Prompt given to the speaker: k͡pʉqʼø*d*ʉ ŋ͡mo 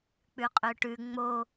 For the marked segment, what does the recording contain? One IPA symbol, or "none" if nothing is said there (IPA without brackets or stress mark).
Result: ʈ